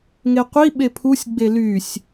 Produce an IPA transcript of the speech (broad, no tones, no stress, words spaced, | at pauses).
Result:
ŋeqʷi ɓepʰusʲ ɡ͡belysʲ